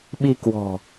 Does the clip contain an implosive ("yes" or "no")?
yes